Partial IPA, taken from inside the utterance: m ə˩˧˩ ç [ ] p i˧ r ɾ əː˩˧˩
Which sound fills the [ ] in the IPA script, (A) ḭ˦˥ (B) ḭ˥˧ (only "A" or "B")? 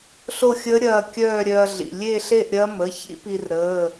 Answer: A